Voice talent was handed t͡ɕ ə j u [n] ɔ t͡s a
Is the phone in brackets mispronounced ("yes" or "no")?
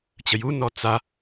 no